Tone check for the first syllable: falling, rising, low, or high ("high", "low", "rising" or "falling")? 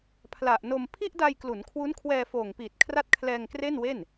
low